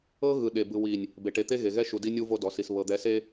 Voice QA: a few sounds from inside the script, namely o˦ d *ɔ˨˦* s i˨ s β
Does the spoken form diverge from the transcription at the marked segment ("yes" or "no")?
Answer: no